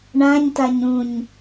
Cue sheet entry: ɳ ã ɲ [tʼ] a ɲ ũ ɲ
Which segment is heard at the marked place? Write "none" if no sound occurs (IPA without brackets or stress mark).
t